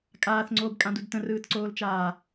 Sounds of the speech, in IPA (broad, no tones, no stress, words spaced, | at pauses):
kʼaːθŋ͡ǀoːbkʼãdud tə̃rɯːtǀoːlt͡ʃaː